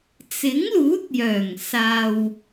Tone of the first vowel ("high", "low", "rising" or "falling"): rising